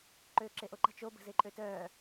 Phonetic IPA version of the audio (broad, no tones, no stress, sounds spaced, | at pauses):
ǃ øː ǁ e ʔ o ǃ ə̤ t͡ʃ o b ə̤ z e ǃʼ ø t œː